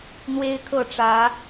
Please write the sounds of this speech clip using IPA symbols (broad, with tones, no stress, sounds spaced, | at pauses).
n̪ w e˦ ɪ̯ kʰ ɤ˥˨ ʈ͡ʂ ä˨˦